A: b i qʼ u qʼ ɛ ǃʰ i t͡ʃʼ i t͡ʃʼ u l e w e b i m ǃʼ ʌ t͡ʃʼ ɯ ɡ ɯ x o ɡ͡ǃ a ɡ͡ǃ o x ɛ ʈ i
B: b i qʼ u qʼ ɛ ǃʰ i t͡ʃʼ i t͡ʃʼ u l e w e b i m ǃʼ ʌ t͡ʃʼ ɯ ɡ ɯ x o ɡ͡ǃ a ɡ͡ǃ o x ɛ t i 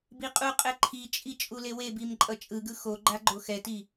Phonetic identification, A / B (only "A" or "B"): B